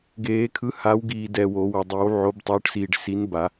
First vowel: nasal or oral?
oral